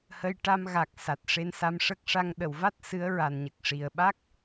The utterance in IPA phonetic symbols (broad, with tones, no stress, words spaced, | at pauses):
hə˧jʈa˧m ɣa˨˩k̚ sa˨˩t̚ʂe˧nsa˧mʂə˦˥k̚ ʂa˧ŋ ɗə˨˩˨wva˦˥t̚ sɨ˧˥ə̯ɹa˨˩nɲə˨˩k̚ʂi˨˩ə̯ ɓa˦˥k̚